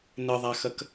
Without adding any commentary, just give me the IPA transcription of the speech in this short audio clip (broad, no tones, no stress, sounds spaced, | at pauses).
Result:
n ɘ ðˤ a x ɐ k